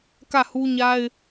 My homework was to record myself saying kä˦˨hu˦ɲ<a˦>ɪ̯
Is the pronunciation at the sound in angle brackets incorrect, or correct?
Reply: correct